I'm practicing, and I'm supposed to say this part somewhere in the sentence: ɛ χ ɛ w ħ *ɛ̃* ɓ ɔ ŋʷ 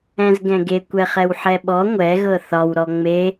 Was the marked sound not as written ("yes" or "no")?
yes